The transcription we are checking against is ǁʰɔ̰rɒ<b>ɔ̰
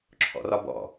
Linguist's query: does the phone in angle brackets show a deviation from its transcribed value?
no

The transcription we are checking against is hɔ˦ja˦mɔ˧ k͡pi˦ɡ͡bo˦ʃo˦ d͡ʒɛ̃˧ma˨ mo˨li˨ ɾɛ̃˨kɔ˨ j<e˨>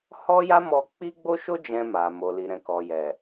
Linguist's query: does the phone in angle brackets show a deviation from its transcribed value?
yes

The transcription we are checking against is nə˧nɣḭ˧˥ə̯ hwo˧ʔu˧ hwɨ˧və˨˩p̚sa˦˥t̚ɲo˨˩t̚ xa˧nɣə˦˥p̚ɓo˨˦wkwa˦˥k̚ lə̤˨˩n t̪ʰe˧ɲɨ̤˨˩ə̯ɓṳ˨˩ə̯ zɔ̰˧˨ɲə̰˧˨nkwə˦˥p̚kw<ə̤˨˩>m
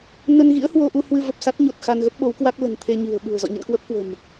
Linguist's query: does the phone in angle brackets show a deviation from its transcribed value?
no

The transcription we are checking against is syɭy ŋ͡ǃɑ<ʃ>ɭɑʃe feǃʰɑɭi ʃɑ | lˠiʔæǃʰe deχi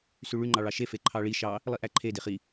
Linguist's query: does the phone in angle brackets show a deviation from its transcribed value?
yes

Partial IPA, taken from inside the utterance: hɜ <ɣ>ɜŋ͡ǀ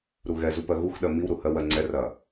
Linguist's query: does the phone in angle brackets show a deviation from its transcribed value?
yes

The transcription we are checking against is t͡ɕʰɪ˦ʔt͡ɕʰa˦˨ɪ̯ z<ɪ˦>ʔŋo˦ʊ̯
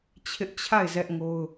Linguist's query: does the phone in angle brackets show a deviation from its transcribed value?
yes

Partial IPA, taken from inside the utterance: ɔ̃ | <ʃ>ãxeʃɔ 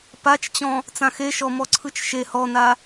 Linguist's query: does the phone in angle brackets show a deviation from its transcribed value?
yes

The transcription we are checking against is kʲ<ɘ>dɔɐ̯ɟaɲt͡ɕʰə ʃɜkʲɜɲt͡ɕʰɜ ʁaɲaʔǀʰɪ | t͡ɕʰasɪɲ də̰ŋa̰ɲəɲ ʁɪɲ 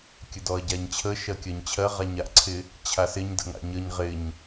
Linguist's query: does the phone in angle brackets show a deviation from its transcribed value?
no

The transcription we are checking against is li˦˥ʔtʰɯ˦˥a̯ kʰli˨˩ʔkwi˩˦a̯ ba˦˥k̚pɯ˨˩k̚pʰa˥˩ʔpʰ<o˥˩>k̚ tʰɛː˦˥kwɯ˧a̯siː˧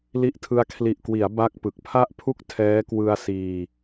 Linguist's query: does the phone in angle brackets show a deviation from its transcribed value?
yes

